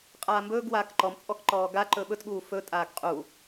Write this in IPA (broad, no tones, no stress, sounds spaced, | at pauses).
qʼ aː m b ɵː ɡ w aː k ǃ ɔ m t͡sʼ ɔ k ǃ ɔː ɡ a ǃ ɵ ɓ ɵ t ɠ uː f ɵ tʼ aː ɡ qʼ u